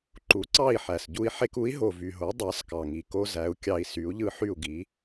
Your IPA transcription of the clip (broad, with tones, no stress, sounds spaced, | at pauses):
ǃ u˩˥ ǀ ɑ˥˩ i̯ ħ æ˩ s ɟ u˧ i̯ ħ e˧ k u˩˥ i̯ ɦ o˩ v y˩ ɦ o˩˥ dˤ ɑ˩˥ s k ɑ˩ ŋ i˩ k o˧ z æ˩˥ u̯ kʲ ɑ˧ i̯ s y˩˥ u̯ ʎ ɯ˥ ħ y˥˩ u̯ ɡ i˩˥